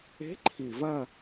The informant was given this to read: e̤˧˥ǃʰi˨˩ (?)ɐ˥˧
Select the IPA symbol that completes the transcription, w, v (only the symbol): v